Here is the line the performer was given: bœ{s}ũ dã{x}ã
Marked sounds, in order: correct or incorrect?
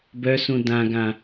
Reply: correct, incorrect

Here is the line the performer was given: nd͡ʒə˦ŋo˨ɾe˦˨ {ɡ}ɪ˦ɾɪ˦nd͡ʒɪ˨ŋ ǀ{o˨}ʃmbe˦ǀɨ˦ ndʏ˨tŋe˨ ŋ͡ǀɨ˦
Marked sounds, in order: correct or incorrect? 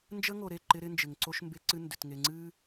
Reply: incorrect, incorrect

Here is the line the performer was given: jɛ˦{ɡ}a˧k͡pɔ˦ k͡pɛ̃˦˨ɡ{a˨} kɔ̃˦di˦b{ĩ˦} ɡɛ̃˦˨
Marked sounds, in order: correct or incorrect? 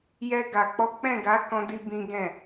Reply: correct, incorrect, correct

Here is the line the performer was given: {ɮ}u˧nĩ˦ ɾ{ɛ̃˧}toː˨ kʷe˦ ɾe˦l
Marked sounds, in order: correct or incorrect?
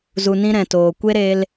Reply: incorrect, incorrect

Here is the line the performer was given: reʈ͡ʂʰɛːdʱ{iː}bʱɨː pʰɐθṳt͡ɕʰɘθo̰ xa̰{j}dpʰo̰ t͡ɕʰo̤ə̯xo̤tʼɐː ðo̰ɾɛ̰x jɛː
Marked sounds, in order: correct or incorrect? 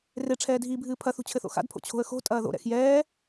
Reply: correct, incorrect

